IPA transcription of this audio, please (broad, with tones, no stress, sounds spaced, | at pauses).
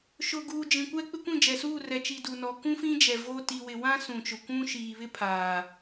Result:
ʃ ʊ˨ ɡ uː˨ d͡ʒ ĩ˨ kʷ ɛ˦ k͡p ɪ˦ kʷ ĩ˦˨ d͡ʒ ɛ˨ s uː˦˨ r ɛ˨ t͡ʃ i˨ d u˨ n ɔ˨ k ũ˦ f ĩ˦ d͡ʒ ɛ˨ v oː˦ t i˨ w ɪ˨ w ã˦ s ũ˨ t͡ʃ ʊ˨ kʷ ũ˦ ʃ iː˨ β ɪ˦ pʰ aː˨